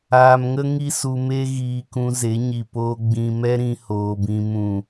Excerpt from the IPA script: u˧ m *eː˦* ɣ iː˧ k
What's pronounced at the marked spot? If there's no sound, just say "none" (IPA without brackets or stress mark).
e˦